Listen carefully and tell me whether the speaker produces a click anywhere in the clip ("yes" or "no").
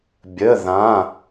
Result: no